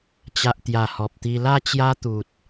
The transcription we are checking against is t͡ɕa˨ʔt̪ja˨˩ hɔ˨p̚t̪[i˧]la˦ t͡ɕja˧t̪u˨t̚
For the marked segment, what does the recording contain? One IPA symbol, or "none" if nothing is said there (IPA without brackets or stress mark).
i˧